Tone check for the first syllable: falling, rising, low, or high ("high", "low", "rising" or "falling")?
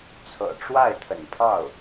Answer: low